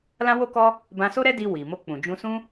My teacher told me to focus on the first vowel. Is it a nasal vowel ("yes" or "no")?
yes